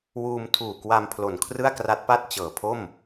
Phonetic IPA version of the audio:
wuː˧mtʰuː˨˩ kwa˧mpʰlo˨˩n kʰrɯ˥˩a̯kra˦˥t̚pa˥˩t̚ t͡ɕɤː˨˩pʰo˥˩m

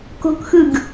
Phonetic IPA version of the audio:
ko̤kxɯɡ

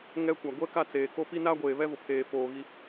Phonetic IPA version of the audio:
ŋɛ˦kʷa˨ ɡʷɛ˦ka˦˨ t͡seː˨ko˦ pi˦na˦ɡʷeː˨ βɛ˦vʊ˨pʰeː˨ foː˨ ɣi˦

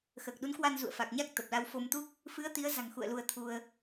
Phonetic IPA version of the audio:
xəː˨˩k̚ɗu˨˦nkwa˧n zṵ˧˨ə̯fa˨˩k̚ɲa˦˥k̚ t̪ə˨˩p̚la˧w fo˧mt̪u˦˥k̚ | fɨ˨˦ə̯ t̪i˨˦ə̯za̤˨˩ŋ xṵ˧˨ə̯ lu˧ə̯t̪ʰu˧ə̯

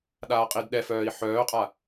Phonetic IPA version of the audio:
ɗaːqʼidɗɛfœːi̯ ħœːqʼa

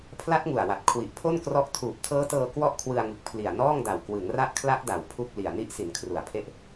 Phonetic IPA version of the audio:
pʰla˦˥t̚ŋu˨˩a̯wa˨˩t̚ kʰwi˨˩ʔpʰo˥˩nkrɔ˦˥ʔ tʰuː˨˩p̚tʰɤː˦˥tɤː˧ kwɔ˥˩ʔkʰwɯ˧a̯ŋɯ˨˩k̚ pʰli˨˩a̯nɔː˥˩ŋda˨˩w kwɯ˩˦ŋra˦˥ʔkʰla˦˥ʔda˩˦w pʰu˥˩k̚ li˨˩a̯ ni˦˥ʔsi˩˦n kʰru˨˩a̯pʰe˦˥ʔ

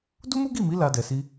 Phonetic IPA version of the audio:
du˦mu˦ɡi˦˨mi˨˦ la˧dɛ˨ si˧

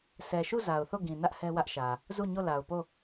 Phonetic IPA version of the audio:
sʰɛ˨ʃu˦˨ za˨ʊ̯θo˦˨ɡĩ˨nä˦ʔ hɛ˦wä˦ʔʃä˨ | zu˦˨ɲo˦˨ la˨ʊ̯po˦˨

